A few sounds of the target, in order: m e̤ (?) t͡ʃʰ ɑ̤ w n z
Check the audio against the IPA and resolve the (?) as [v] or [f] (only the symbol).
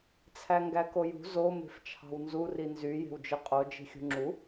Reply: f